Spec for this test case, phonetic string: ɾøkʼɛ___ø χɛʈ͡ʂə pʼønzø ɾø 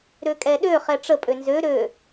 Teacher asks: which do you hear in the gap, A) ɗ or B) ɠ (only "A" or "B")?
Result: A